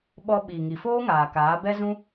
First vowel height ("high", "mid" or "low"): mid